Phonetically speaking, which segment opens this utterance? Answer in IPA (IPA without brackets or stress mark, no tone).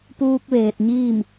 p